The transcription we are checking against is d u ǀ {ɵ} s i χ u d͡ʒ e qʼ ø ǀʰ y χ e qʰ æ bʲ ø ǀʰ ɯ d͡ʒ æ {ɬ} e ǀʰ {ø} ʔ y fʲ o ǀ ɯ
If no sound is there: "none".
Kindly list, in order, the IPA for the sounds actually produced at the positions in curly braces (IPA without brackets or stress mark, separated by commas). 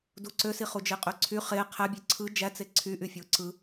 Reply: ø, t͡s, y